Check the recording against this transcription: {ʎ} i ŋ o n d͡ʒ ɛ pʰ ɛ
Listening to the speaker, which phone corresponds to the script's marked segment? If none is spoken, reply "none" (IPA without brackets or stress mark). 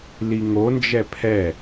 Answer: l